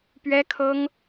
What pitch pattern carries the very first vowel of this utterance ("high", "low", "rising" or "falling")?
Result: high